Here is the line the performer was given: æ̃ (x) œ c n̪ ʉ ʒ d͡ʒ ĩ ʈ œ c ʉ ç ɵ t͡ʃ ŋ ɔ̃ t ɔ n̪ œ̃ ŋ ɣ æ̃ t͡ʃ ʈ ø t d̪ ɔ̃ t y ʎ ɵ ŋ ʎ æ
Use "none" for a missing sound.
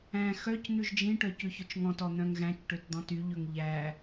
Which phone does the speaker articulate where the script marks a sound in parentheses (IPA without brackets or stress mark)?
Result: x